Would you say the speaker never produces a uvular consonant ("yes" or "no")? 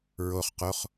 no